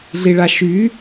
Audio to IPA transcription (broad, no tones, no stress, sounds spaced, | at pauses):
ɮ i ɭ a ʃ y